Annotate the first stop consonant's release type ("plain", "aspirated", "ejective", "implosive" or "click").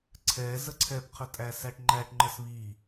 click